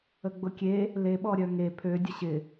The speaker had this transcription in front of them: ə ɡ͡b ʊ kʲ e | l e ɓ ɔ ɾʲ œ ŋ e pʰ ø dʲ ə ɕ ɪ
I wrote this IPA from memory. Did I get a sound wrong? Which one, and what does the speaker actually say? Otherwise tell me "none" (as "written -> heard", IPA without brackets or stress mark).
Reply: none